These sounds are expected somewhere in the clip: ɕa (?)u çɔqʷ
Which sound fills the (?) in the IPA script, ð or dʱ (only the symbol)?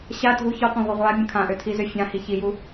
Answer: dʱ